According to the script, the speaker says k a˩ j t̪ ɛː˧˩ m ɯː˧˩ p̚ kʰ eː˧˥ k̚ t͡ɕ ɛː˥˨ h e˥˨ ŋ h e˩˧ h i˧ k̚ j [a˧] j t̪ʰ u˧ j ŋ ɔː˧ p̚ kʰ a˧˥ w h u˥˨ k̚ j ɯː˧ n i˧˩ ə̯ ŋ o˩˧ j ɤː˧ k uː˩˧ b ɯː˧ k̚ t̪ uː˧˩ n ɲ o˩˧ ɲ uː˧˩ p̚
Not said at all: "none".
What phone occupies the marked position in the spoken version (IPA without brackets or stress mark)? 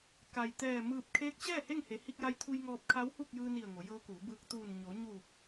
a˧